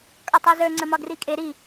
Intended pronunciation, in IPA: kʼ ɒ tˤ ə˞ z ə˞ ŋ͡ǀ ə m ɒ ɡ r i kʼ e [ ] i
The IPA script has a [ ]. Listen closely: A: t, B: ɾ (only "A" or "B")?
B